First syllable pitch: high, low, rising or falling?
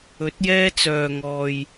rising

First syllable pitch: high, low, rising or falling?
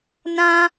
high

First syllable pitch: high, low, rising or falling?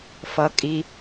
low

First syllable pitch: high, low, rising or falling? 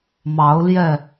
rising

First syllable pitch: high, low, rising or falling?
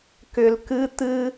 low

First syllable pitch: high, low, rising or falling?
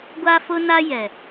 high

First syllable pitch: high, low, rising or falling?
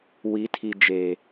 rising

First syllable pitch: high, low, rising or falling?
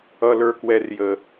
high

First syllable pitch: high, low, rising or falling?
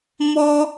high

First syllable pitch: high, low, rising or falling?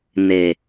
low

